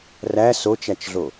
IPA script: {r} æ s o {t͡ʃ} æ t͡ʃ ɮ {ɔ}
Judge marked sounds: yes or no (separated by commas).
yes, yes, no